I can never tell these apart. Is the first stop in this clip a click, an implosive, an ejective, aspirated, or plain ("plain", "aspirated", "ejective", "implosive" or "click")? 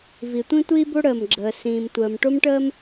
plain